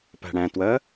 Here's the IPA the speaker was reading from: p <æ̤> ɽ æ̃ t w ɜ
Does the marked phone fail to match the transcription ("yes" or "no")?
no